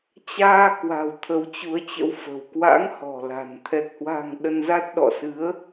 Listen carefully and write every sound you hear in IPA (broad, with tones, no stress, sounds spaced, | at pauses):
t͡ɕ aː˧ k w a̤˨˩ w t̪ʰ ə˨˦ w t͡ɕ u˨˦ ə̯ t͡ɕ ə̰˧˥ w f ə̤˨˩ w k w a̰˧˥ ŋ h ɔ̤˨˩ l a̤˨˩ n t̪ʰ ɛ˨˩ k̚ h w a̤˨˩ ŋ ɗ ə˧ n z a˦˥ t̚ ɗ ɔ̰˧˨ s ɨ˨˦ ə̯